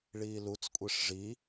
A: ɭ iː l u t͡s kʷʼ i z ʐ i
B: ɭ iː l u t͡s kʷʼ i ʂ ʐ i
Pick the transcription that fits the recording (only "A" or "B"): B